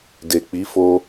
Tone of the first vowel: low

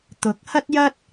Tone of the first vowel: rising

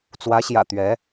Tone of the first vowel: rising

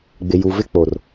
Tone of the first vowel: low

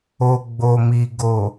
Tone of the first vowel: low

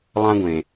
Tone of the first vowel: high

